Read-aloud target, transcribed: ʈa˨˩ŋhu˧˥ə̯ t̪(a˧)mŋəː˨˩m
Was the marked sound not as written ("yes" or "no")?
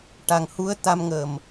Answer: no